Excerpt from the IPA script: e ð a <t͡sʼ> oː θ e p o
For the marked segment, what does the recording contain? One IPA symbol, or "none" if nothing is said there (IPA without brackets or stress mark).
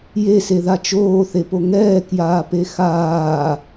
t͡ʃ